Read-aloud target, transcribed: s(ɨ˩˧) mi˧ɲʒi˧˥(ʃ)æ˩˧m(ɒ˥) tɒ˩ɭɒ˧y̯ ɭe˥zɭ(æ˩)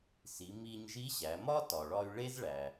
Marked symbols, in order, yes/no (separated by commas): no, no, yes, yes